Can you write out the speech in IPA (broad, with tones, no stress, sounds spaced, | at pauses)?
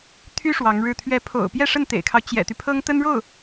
t̪ʰ y˥ ʂ w ɑ˧˥ ŋ ɻ ɻ̩˥˩ t̪ʰ ɥ ɛ˧˥ pʰ o̰˨˩ ʊ̯ p j ɛ˥˧ ʂ ə˥˩ n t̪ ḛ˨˩ ɪ̯ kʰ ɑ˦ ʊ̯ t͡ɕ j ɛ̰˨˩ t̪ y˦ pʰ ɤ˥ ŋ t̪ ə˥ n ɻ o˥˩ ʊ̯